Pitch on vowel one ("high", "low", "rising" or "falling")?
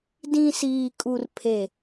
low